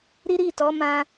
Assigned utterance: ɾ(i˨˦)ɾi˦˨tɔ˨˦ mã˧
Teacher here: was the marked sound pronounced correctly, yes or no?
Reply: no